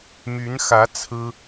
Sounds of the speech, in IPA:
my˧˥nxä˧˥ t͡sʰɹ̩˥

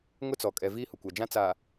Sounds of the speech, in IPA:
ŋʊ˦t͡sɔ˨kʼɛ˨ viː˦hʊ˨kʷa˨d͡ʒã˦ t͡saː˨

